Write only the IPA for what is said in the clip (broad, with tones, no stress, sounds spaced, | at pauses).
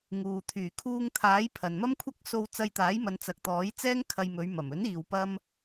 ŋ uː˨ t̪ʰ yː˨˩ kʰ uː˧ ŋ t̪ʰ aː˨˥ j pʰ ɐ˨ n m ɐ˥ m kʷʰ ɐ˥ k̚ s o˧ w t͡s ɐ˧ j t̪ aː˨˥ j m ɐ˨˧ n t͡s ɐ˨ k̚ t̪ ɔː˨˥ j t͡s ɛː˥ ŋ kʰ ɐ˧ j m ɵ˨˧ ɥ m ɐ˨˩ m ɵ˨˥ n iː˨ w p ɐ˧ m